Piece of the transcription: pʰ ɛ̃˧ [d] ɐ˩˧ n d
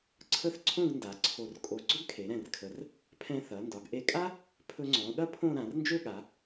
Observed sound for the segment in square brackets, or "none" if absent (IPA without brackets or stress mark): θ